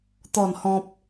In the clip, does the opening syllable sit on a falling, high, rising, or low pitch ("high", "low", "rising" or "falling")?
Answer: falling